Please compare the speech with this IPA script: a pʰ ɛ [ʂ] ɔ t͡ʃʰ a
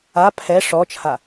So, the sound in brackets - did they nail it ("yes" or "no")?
yes